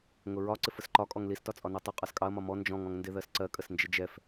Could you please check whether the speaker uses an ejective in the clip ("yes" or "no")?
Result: yes